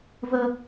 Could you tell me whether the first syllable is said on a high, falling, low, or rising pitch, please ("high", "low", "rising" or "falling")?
high